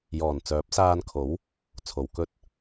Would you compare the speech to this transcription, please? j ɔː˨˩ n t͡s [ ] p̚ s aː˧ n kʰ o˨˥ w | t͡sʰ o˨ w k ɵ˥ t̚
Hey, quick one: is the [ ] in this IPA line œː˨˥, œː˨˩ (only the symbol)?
œː˨˥